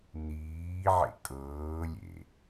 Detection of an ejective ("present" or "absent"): present